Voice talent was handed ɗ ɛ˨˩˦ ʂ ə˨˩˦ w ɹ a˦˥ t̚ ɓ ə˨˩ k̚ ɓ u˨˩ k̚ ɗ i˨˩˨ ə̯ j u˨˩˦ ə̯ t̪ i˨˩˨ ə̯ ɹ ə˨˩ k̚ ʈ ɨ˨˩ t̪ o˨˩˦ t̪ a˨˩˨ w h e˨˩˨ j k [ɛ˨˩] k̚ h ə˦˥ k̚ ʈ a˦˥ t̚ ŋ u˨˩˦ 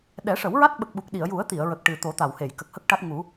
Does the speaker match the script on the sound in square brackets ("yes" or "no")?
no